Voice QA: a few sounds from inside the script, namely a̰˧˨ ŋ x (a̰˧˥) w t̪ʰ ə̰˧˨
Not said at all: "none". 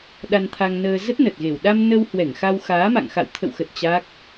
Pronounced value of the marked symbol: a̰˧˨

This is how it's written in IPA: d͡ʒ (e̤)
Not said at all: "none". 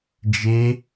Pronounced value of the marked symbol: e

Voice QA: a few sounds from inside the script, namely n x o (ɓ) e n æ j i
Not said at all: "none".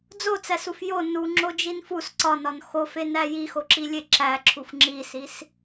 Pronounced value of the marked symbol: f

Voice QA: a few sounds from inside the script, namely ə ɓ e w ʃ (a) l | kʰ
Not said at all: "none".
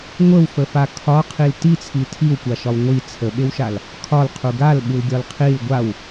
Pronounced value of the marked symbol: a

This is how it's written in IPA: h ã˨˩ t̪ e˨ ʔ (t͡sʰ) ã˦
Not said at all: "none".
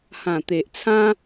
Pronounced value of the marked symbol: t͡sʰ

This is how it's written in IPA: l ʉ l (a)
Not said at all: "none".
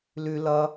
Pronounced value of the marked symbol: ʌ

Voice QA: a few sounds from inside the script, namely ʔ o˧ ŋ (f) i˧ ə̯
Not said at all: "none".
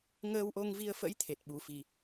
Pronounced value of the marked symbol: v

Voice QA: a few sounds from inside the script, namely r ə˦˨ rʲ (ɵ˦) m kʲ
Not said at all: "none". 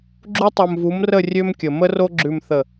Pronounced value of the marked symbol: ø˦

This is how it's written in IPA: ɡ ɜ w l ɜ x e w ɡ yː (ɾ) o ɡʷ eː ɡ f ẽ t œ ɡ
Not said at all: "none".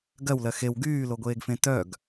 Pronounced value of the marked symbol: l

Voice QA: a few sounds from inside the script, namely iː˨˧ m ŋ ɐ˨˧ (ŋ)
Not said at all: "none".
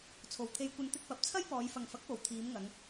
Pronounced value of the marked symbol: ŋ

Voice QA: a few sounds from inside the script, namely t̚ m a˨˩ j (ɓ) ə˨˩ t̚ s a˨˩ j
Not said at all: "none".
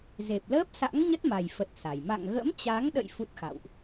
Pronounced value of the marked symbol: f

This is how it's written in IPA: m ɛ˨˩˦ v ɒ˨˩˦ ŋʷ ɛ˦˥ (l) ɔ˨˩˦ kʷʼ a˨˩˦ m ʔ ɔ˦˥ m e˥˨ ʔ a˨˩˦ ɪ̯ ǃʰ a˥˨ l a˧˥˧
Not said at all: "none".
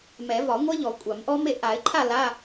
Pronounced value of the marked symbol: ʎ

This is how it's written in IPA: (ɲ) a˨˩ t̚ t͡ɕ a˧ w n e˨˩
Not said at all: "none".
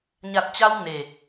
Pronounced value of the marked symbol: ɲ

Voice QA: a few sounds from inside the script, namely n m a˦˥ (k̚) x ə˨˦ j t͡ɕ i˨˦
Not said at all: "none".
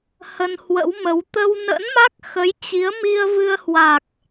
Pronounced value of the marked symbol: k̚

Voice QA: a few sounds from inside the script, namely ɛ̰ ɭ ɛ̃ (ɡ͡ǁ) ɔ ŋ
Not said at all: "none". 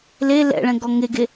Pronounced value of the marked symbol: ɡ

